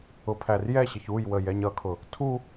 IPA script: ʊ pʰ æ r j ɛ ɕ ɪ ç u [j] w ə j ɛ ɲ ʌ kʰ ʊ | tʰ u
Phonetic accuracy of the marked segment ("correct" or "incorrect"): correct